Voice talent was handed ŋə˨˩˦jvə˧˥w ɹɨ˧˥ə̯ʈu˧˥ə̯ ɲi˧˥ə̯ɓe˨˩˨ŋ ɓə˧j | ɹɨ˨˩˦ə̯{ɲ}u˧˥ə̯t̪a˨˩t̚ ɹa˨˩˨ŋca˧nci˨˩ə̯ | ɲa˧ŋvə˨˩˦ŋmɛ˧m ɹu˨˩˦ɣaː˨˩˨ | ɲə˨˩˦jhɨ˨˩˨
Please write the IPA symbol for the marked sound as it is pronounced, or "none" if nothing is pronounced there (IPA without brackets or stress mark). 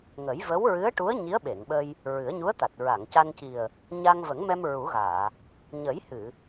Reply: ɲ